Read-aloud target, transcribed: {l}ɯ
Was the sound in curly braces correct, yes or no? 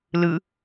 yes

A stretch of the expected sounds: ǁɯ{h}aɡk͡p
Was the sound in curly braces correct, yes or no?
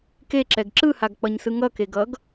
yes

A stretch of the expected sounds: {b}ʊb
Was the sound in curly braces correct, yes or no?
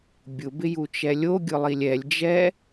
no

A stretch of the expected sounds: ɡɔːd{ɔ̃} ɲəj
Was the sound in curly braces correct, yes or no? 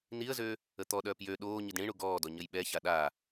no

